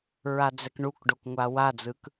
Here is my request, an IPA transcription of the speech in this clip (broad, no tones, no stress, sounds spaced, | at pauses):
ɹ a d͡z ɛ k ɳ u k ɖ o k ŋʷ a w a d͡z ɯ k